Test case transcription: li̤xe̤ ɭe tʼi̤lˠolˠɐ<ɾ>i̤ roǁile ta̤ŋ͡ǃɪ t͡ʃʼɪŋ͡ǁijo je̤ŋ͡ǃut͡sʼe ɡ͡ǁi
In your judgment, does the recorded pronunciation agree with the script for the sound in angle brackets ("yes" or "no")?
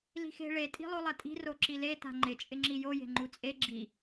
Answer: no